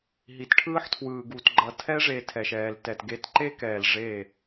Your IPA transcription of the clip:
ɦ i˨ t ʈʰ ɯː˦ ħ tʰ w ɯː˨ ɡ u˨ t ɡ͡ǃ ʌ˨ tʰ ɛ˦ ʐ e˨ tʰ ɛ˨ ʃ ɛː˨ l t ɛ˨ t ɡ e˨˦ t ǃ e˦ k ɛː˨ l ʐ e˦˨

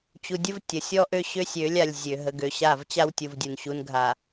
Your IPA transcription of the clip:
t͡ɕ u˨ dʲ ə˦ v tʲ ə˨ sʲ ɔ˦ ʔ ø˦ ɕ ø˦ sʲ ø˨˦ lʲ a˨ lʲ zʲ ø˨ ɦ ə˨ ɡ ø˨ ɕ a˦˨ v t͡ɕ a˦ w tʲ u˨ v dʲ u˨ n ɕ u˨ n ɡʱ a˨

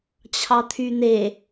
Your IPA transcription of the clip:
t͡ɕʰ ɑ t̪ʰ y n̪ e

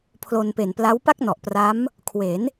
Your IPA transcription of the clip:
pʰ l o˧ n p e˨˩ n p l a˦˥ w p a˥˩ k̚ n ɔ˨˩ ʔ p r a˦˥ m | kʰ w e˩˦ n

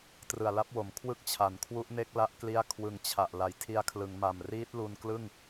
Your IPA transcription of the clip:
t r ɯ˨˩ a̯ l a˦˥ p̚ w o˩˦ m kʰ w ɯ˥˩ k̚ t͡ɕʰ a˨˩ n kʰ w u˦˥ ʔ n e˦˥ k̚ l a˦˥ ʔ k l i˦˥ a̯ kʰ w ɯ˨˩ ŋ t͡ɕʰ a˨˩ ʔ l a˩˦ j tʰ i˧ a̯ kʰ l ɯ˩˦ ŋ m a˨˩ m r iː˦˥ t̚ l u˧ n k l ɯ˥˩ ŋ

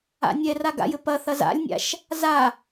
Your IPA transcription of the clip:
a̰ nʲ ɛ r a ɡ a̰ j ɘ p ɐ θ ɐ z a̰ lʲ nʲ a̰ ʃ | z a

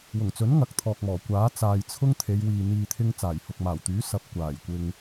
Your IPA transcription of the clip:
w ʊ˨˩ ŋ t͡s ɵ˨˥ n ŋ ɐ˨˥ k̚ t̪ʰ ɔː˨ k̚ m ɔː˨˩ kʷ aː˨˥ t͡s aː˨ j t͡sʰ ʊ˥ ŋ t̪ʰ e˨˧ j w iː˨ n̪ iː˨ t̪ʰ ɪ˧ ŋ t͡s aː˨˩ j h ʊ˨ k̚ m aː˨˩ w t̪ yː˨˥ s ɐ˨ p̚ kʷ aː˨˩ j kʷ ɪ˨ ŋ

